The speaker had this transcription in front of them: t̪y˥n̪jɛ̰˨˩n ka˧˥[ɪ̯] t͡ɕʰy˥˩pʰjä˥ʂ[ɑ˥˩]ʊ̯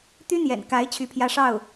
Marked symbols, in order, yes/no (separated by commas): yes, yes